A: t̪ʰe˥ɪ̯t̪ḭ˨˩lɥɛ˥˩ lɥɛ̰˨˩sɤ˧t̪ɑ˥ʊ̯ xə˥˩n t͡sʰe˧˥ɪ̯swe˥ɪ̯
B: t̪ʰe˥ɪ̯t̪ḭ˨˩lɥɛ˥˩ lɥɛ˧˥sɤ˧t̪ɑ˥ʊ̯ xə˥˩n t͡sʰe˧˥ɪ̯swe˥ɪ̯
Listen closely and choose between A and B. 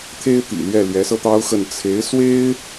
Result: B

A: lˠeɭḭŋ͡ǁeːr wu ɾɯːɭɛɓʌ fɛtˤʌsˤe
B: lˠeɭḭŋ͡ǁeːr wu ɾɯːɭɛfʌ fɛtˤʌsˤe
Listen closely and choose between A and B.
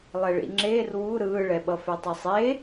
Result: A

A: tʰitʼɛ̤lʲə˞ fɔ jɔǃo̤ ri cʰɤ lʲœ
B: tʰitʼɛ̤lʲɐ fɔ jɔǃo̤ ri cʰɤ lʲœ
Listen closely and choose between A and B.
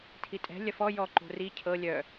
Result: B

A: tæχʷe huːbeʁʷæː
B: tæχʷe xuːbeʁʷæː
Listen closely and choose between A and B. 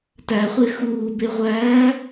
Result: B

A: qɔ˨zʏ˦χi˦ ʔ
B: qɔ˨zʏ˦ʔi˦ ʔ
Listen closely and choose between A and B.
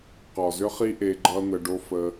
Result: A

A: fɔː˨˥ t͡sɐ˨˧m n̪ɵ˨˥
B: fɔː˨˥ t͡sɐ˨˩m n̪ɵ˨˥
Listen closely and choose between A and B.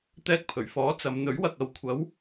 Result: A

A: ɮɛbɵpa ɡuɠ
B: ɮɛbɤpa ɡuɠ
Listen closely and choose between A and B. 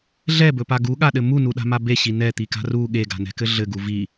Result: A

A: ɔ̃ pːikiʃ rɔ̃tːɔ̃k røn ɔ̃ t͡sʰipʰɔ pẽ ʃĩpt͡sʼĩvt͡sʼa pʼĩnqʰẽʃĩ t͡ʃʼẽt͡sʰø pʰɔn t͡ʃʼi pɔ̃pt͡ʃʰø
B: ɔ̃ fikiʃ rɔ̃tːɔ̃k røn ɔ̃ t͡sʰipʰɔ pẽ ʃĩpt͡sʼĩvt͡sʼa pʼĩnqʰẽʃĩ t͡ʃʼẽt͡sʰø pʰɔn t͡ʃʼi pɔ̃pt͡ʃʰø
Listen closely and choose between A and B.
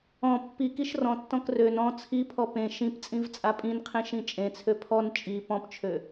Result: A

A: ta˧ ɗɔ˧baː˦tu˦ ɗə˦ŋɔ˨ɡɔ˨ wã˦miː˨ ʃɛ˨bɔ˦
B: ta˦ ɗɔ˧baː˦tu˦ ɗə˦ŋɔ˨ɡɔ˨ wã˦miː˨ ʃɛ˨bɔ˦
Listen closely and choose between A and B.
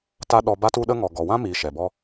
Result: B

